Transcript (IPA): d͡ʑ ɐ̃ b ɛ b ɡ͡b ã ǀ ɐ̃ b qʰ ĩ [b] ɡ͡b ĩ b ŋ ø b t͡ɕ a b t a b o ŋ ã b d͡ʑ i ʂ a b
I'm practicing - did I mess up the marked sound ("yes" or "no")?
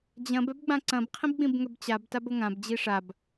no